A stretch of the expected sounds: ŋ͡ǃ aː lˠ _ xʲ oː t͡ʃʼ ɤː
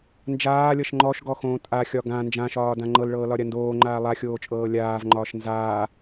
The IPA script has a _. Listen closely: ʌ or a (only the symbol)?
a